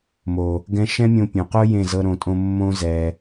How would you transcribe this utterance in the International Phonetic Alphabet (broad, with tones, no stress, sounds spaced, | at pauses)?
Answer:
m o˨ | ɡ ɛ̃˧ ʃ ɛ̃˦ mʲ õ˧ pʲ õ˨ q o˦ j ẽ˦˨ z ɤ˦ ɾ õ˧ tʼ õ˦ mː õ˦ z ɛ˧